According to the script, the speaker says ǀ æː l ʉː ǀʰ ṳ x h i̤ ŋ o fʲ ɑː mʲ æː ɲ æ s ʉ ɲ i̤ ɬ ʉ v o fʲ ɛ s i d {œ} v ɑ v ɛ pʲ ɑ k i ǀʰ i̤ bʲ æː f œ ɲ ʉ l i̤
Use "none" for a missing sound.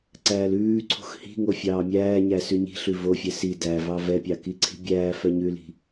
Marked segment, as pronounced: æ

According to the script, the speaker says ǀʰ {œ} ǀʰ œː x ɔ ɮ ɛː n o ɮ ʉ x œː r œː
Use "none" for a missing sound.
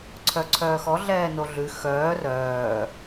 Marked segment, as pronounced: œ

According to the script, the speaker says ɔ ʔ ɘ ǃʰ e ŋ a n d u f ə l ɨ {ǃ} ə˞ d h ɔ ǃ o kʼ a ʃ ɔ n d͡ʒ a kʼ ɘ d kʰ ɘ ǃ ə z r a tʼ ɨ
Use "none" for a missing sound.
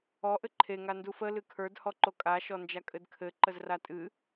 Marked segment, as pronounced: kʰ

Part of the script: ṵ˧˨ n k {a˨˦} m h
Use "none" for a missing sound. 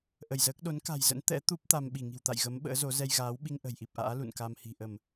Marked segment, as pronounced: a˧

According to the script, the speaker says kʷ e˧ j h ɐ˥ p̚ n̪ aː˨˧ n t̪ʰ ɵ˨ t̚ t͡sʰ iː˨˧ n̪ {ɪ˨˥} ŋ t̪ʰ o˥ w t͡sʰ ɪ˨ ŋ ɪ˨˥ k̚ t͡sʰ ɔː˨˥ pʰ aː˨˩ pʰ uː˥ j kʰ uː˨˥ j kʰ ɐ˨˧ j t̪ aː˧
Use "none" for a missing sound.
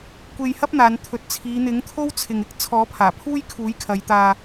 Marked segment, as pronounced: ɪ˨˥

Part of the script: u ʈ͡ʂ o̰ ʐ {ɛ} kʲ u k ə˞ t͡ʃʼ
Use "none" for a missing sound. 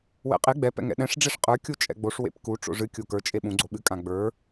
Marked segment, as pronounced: ɨ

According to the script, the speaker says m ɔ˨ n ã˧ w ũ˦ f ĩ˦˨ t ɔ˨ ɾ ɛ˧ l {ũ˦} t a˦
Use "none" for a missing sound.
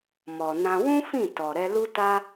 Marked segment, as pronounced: u˦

